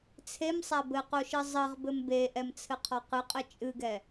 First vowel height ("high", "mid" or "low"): mid